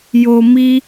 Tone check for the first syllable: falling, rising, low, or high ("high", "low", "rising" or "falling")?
low